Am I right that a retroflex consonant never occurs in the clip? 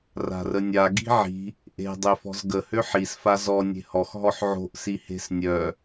yes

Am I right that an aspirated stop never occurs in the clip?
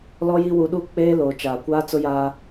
yes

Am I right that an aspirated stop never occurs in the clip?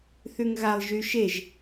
yes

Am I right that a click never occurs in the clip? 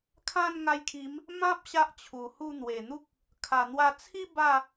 yes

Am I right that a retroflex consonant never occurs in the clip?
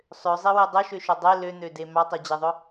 yes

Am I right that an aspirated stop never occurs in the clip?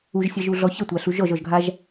yes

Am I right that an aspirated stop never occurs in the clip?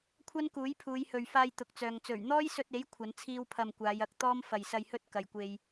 no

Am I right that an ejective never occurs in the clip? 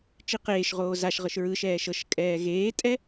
no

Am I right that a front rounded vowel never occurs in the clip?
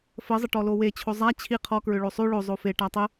no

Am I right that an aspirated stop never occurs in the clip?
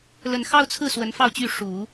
no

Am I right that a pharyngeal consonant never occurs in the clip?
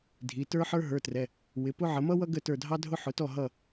no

